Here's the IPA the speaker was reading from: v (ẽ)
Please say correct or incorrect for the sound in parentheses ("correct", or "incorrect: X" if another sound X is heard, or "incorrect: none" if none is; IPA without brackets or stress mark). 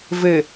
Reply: incorrect: e